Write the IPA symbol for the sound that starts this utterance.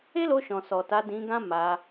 e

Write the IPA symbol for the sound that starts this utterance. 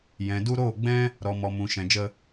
j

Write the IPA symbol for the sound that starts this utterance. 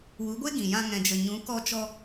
w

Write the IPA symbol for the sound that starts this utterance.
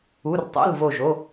u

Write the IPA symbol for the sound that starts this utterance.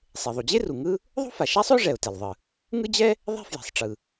sˤ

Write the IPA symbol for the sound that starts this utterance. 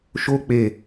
ʃ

